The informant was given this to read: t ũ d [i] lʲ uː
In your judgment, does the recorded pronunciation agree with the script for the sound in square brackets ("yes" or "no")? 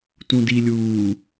yes